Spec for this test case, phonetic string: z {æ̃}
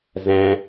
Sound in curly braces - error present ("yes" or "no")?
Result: no